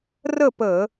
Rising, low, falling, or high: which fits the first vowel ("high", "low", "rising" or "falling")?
falling